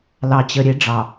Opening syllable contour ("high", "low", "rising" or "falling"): low